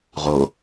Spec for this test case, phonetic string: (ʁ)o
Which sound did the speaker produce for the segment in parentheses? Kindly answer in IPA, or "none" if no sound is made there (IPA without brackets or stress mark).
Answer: ʁ